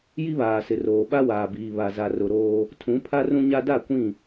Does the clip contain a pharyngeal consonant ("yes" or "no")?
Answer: no